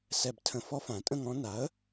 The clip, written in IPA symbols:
sɛ˨˩btʰə̃˨˩ fɔ˥˧fã˨˩˦tʼə̃˥˧ŋɔ̃˧˥ na˩˥ə̯

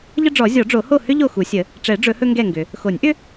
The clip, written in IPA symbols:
ʎə˥ɖ͡ʐɔ˨˩˦ zʲɔ˨˩˦ɖ͡ʐo˨˩˦ho˥˨ hʏ˥ ʎo˥˨xu˨˩˦sʲə˨˩˦ | ʈ͡ʂɛ˨˩˦ɖ͡ʐɵ˨˩˦ hɵ˥ŋɡɛ˥˨ŋɡʏ˨˩˦ | xo˨˩˦nʲʔʏ˥

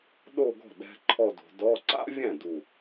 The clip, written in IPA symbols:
ɗo˥˧ɡɔ̤˥˩ ɗɛ̤˧˥˧ǃʰɔ˥˧do̤˨˦ dɔ˧˥˧ ǀa̰˥vʲɛ̃˥˩ du˥˧

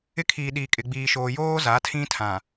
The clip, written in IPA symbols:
ɪ˦kʰiː˨ɗiː˨ kʼɪ˨ɡ͡biː˨ʃoː˨ joː˦ za˨˦tʰĩ˦ tʰã˨

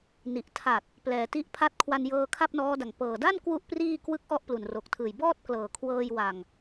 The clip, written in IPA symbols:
ni˨˩ʔtʰa˨˩t̚ | plɛː˩˦ti˦˥ʔ pʰa˦˥t̚ kʰwa˧njɤː˧ kʰa˥˩p̚nɔː˦˥da˨˩ŋ pɤː˨˩ da˥˩n kwu˥˩ʔpriː˥˩ kwɯ˦˥k̚ ʔɔ˥˩ʔplu˨˩nro˨˩k̚tʰɯː˨˩j bɔː˥˩t̚klɤː˨˩kʰwɤː˧jwa˨˩ŋ

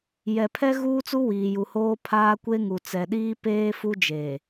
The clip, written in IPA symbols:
jɛ˨pʰɛ˦ ɣuː˦t͡su˦ wiː˨ju˨hoː˦ pʰaː˦kʷe˦ŋu˨ t͡sɛ˨ɗiː˦peː˦ fu˦d͡ʒe˨

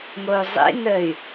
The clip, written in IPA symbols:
ŋou̯zˤḭnəy̯

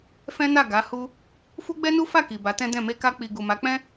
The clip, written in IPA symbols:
fɛ̃˦na˦˨ ɡa˨˦ hu˧ | fu˦ɡ͡bɛ˦nu˦fa˦˨ ki˨ba˨˦tɛ̃˦dɛ̃˦˨ me˧ka˧k͡pi˨ ɡu˨ma˨˦k͡pɛ̃˦

